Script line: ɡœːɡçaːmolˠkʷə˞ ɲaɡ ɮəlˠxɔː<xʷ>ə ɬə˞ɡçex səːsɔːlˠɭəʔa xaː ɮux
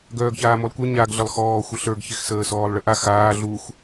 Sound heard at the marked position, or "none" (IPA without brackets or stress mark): xʷ